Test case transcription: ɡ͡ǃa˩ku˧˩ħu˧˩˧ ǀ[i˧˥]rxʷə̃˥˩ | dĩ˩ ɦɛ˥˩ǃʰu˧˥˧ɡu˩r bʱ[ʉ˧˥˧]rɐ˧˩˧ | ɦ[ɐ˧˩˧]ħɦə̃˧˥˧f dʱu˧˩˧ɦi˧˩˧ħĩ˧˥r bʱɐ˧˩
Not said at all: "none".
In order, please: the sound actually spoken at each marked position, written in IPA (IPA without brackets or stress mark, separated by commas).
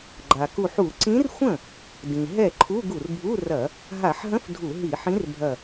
ĩ˧˥, u˧˥˧, a˧˩˧